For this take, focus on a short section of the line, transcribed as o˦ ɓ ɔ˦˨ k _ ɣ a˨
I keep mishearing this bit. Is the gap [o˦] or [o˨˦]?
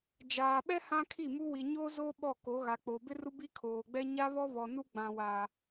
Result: o˨˦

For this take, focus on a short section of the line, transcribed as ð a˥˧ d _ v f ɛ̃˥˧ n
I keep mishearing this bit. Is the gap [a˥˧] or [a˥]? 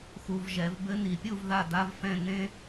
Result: a˥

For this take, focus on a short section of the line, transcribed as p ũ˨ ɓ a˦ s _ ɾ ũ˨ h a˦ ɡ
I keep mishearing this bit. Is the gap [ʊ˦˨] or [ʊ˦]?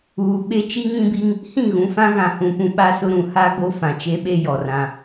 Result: ʊ˦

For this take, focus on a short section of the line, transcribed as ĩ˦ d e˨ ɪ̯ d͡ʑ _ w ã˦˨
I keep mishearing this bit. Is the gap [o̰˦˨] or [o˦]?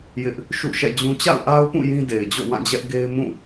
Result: o̰˦˨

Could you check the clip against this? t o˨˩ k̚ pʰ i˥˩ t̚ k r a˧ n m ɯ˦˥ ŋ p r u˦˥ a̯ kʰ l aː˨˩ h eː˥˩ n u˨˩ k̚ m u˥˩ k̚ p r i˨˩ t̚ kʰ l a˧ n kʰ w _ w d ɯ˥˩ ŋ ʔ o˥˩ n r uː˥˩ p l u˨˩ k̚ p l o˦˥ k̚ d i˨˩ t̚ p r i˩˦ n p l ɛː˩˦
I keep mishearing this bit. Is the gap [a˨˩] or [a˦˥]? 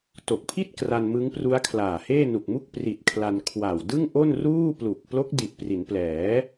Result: a˨˩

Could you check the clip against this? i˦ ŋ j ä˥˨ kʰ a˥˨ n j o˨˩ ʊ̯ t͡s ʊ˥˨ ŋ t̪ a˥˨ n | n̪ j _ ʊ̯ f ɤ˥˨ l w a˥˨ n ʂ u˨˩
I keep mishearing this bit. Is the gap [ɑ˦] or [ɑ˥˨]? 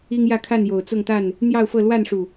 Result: ɑ˥˨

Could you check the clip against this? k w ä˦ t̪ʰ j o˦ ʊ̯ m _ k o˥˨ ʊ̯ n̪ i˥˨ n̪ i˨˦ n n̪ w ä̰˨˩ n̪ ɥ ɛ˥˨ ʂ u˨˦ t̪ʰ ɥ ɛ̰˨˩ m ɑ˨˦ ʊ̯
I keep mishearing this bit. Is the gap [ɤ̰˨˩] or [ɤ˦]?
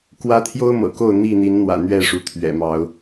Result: ɤ̰˨˩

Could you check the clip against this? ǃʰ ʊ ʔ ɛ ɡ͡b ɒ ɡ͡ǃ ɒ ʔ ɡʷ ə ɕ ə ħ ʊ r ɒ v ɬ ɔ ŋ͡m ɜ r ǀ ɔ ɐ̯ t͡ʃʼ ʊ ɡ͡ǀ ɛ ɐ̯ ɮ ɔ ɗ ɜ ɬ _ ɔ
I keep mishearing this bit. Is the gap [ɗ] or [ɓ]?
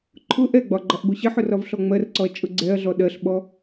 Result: ɓ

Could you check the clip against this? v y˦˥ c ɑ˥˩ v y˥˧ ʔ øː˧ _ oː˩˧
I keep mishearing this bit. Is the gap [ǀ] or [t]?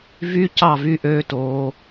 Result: t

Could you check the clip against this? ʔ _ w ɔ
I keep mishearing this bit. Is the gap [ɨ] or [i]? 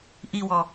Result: i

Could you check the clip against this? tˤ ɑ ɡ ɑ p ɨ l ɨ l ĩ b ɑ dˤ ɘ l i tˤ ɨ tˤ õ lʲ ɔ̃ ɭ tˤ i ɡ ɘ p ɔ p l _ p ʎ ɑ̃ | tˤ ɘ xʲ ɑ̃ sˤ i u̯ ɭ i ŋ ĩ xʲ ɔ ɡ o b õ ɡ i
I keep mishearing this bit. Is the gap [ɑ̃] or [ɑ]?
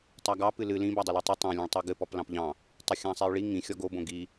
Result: ɑ̃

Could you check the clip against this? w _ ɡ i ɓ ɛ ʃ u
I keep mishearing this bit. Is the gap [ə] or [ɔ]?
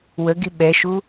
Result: ə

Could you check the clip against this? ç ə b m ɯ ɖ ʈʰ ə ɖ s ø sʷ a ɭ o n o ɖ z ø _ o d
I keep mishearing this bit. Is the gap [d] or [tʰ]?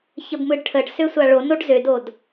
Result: d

